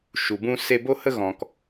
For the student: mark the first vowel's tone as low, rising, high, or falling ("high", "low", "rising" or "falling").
low